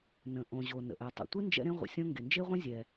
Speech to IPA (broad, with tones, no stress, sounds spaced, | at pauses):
n ə̃˩ ʔ õ˩ ʑ o˩ n ə̰˩ ʔ ɛ˩ tˤ ə̰˩ tʷ ɨ˥ n d͡ʒ ɛ̰˥ ɾ ẽ˥ ʁʷ ə̰˩ sʲ õ˥ ŋ ɡ e˩ n d͡ʒ e˥ ʁʷ ẽ˥ zʲ ɛ˩